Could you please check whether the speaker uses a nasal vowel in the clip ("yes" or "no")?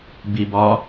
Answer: no